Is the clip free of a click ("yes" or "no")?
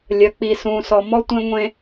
yes